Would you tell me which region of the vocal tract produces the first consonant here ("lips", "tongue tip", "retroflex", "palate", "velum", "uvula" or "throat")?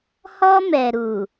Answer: throat